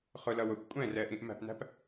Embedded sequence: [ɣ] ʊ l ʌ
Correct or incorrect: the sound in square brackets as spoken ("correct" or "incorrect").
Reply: incorrect